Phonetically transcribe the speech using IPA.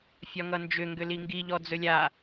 fʲ ɒ ŋ ʌ n d͡ʒ ʏ ŋ ɡ ʏ l i ŋ ɡ i ʎ ɔ d͡z ɵ lʲ a

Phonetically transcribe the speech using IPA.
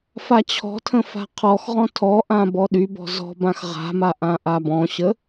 f a t͡ɕʰ ɔ̤ tʰ ə̃ f a̤ qʰ ɔ x ʁ ɔ̃ tʰ ɔ ʔ ã b ɔ ɗ y b ɔ̤ z ɔ̤ b ã x ʁ a̤ m a ʔ ã ʔ a b ɔ̃ ɕ ə

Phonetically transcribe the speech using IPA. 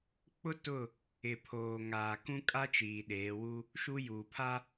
k͡p ʊ˦ t ʊ˦˨ | ɪ˨ pʰ oː˨ ŋ aː˨ k ũ˦ kʼ a˦ t͡ʃ iː˨ ɗ eː˨˦ w u˦ | ʃ u˦ j uː˨ pʰ a˦

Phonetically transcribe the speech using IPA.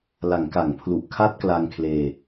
l a˩˦ ŋ k a˩˦ ŋ pʰ l u˨˩ ʔ kʰ a˥˩ t̚ k l a˧ ŋ kʰ l eː˧

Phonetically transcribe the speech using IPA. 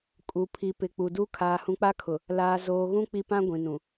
kʼ u˨ pʰ i˨ p ɪ˨ k͡p u˨ d u˦ kʰ aː˨ h ũ˨ k͡p a˦ kʰ ʊ˨ | l aː˨ z oː˨ ɣ ũ˦ k͡p i˦ p ã˦ ɡʷ ĩ˨ n ũ˨

